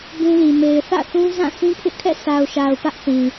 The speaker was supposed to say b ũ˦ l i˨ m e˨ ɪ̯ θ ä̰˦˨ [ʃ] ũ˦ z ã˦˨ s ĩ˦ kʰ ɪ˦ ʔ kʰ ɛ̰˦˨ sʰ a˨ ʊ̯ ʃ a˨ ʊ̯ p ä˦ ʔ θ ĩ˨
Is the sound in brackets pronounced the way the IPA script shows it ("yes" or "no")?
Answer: no